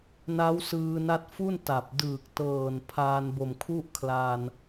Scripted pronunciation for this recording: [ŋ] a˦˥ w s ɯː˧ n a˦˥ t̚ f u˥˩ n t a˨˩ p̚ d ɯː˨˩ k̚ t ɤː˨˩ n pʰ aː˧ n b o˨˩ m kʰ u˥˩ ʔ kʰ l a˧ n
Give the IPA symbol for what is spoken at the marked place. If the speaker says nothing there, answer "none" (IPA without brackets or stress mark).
n